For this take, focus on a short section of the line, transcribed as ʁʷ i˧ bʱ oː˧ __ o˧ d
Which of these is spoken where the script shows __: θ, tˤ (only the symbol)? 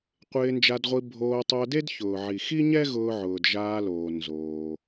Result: tˤ